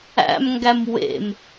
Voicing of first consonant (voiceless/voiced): voiced